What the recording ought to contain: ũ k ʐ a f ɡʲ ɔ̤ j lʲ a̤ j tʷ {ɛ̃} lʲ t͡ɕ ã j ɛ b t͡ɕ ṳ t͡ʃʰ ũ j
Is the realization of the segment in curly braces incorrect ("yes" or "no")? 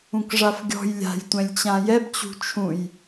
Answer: no